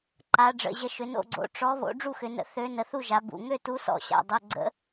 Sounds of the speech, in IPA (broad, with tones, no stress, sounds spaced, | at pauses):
ǃ a˩˧ ɖ͡ʐ ə̰˩˧˩ ʑ ə˨˥ ʃ ʏ˩˧ n o̰˥˨ ɡ͡ǀ o̰˩˧˩ ʈ͡ʂ ɔ˨˥ β o̰˨˥ ɖ͡ʐ u˥˨ x ʏ˩˧ n ə̰˨˥ θ ø˨˥ n ə˩˧ θ u˥˨ ʒ a˩˧ b ṵ˩˧˩ ŋ ø˥˨ t u˨˥ s ɔ̰˩˧ ɕ a̰˩˧˩ dˤ o˩˧˩ ɡ͡ǀ ə̰˨˥